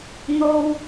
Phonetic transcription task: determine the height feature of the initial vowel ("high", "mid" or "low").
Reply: mid